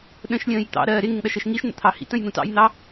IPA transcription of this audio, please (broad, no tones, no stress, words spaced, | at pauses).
ɗə̃ʃlʲə̃ːj t̪ɑ̰ɾɜː ɾɪŋɪŋɗʌʃɜʃ ŋiʃn̪ə̰t̪ʰɑ hḭtə̃jn̪ũ tɑ̰jn̪ɑ